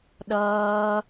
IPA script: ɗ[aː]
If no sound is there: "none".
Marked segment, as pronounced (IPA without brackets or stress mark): ʌː